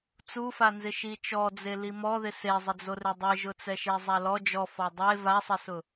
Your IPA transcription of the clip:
t͡sufanzɪ ʃit͡ʃɔd͡ze limɔðɪ sezˤɪd͡zorɪ dˤeʒʊt͡sɛʃe zˤalɔ d͡ʒɔ fɔdˤe vasˤɪsʊ

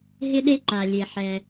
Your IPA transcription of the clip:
ɦɪ˥ɗe˥ǃa˩lʲe˩ ħɛ˩

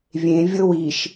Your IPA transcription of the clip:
vʲẽ vʲɤwiʃ

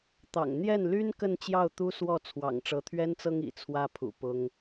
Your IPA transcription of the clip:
t̪ɑ̰˨˩ŋ n̪jɛ˥˩nly˥n kə˥˧nt͡ɕjɑ˥˩ʊ̯ t̪u˥swɔ˥˩ t͡sʰwɑ̰˨˩ŋʈ͡ʂɤ˧˥t̪ʰɥɛ˥nt͡sɤ˥ŋ ḭ˨˩t͡sʰwä˥pʰṵ˨˩ pʊ˥ŋ

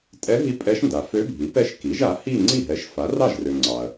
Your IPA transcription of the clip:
tʼɛ˧˥ɦi˧˥ pʼɛ˧˥ʃnda˩ fø˧˥bʱi˩˥pɛ˧˥ʃ ki˩˥ʒa˩˥hi˥˧ ŋ͡ǀi˥˩ɦɛ˩˥ʃfa˩˥ rɑ˥˩ʒrø˩ ŋ͡ǀɑ˩ɐ̯

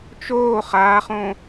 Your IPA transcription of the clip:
t͡ʃoː χaːχõ

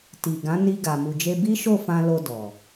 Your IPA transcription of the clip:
ti˨ ɡã˨˦ni˧ ɡa˨mu˨d͡ʒe˧ bi˦ʃo˦˨fã˧ lo˧dɔ˨

